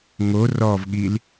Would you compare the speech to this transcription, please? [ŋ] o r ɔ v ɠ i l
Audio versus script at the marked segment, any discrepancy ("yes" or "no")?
no